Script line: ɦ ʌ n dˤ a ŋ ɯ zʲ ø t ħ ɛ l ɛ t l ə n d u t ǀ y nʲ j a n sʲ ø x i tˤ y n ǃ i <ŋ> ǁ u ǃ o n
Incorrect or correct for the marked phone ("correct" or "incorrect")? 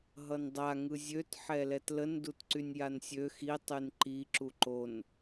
incorrect